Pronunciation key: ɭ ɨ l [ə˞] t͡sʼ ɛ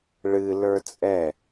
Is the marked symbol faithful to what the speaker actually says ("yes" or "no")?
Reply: yes